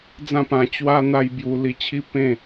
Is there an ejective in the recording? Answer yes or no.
no